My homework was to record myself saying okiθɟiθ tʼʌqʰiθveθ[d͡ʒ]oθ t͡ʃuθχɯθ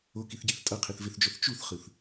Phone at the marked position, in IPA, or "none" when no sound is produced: d͡ʒ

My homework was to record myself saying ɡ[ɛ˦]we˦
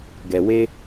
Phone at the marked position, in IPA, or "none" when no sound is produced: ɛ˨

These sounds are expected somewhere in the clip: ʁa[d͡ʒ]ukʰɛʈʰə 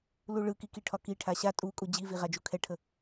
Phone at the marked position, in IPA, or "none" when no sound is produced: d͡ʒ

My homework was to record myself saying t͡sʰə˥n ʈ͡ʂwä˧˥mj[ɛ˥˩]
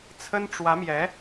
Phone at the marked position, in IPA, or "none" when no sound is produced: ɛ˧˥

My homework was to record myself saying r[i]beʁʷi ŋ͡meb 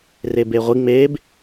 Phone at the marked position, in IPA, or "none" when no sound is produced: e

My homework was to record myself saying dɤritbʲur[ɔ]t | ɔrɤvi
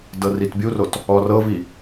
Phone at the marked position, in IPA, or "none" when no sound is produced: o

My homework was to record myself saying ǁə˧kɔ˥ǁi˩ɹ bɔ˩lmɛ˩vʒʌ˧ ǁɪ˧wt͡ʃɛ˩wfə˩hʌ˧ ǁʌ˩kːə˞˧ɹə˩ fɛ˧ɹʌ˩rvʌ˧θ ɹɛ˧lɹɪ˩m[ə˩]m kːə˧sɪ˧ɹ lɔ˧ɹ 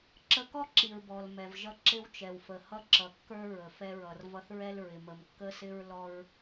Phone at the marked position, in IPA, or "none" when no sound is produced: ə˩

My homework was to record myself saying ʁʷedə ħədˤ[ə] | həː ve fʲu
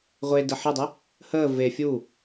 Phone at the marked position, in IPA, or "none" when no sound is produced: ɨ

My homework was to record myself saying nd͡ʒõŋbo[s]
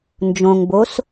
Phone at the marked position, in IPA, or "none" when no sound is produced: s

